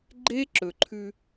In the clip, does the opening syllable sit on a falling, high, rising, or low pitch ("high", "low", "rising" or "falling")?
high